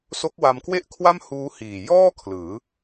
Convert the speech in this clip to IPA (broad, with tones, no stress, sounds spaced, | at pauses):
s o˦˥ k̚ w a˧ m k w e˥˩ ʔ kʰ w a˥˩ m h uː˦˥ h iː˨˩ j ɔː˥˩ kʰ l ɯː˩˦